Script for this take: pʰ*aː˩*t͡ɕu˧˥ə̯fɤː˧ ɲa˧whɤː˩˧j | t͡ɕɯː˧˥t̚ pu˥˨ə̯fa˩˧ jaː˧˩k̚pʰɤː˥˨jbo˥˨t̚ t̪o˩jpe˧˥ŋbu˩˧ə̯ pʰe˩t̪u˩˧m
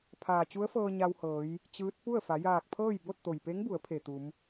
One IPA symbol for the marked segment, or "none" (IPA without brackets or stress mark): aː˩